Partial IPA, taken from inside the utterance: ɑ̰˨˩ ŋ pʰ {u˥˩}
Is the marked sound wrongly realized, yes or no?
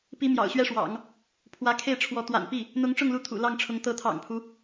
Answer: yes